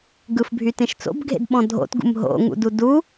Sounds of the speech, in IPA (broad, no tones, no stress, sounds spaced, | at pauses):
ɡ ɯ f bʱ y t ẽ ʃ t͡s o̰ b ɡʱ ḛ d ɓ ɔ̃ dʱ o̰ t ɡ ṵ m ɦ o̰ ŋ ṵ d u d u